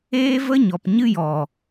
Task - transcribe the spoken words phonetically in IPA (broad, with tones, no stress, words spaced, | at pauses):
eː˦və˦ɲɔ˨p ɲɨ˦jɔ˨